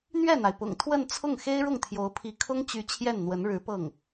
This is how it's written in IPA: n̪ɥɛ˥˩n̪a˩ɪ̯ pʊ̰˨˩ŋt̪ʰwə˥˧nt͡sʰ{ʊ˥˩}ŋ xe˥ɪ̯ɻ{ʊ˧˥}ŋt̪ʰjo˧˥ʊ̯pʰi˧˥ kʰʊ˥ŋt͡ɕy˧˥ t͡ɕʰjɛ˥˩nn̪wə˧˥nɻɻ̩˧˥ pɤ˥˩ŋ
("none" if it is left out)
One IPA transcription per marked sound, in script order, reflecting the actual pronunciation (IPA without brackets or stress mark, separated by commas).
ʊ˥˩, ʊ˥˩